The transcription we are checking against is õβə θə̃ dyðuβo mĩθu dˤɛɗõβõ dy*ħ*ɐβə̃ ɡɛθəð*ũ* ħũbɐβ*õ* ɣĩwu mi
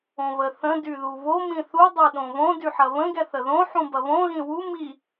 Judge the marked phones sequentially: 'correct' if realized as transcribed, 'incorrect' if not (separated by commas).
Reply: correct, incorrect, correct